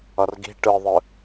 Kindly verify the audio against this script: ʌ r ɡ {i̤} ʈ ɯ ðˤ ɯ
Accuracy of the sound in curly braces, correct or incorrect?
correct